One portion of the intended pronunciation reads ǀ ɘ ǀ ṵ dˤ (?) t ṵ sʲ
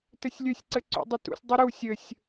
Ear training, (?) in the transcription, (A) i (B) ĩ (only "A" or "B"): A